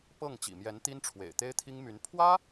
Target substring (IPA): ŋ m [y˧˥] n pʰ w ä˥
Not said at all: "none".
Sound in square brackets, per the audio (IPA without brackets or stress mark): y˧˥